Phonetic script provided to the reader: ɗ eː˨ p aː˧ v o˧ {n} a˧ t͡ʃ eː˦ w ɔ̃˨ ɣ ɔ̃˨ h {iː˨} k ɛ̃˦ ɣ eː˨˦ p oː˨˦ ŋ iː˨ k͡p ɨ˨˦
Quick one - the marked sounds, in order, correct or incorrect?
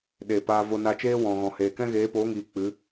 correct, incorrect

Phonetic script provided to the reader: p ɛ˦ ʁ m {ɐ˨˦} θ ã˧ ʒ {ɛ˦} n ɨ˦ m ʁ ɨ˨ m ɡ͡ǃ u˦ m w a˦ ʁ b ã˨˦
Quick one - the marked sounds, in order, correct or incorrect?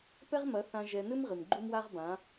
correct, incorrect

